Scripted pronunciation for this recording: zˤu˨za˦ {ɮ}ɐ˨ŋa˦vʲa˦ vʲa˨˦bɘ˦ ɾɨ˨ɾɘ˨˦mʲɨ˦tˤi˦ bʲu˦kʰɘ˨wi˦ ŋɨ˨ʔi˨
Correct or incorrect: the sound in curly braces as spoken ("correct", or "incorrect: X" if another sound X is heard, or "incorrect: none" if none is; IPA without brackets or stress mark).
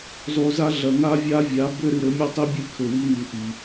correct